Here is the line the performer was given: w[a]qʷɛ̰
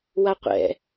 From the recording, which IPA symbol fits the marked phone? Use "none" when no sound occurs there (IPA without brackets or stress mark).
a